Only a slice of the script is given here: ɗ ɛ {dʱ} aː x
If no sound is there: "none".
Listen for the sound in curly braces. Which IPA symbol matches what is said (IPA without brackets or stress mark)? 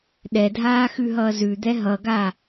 dʱ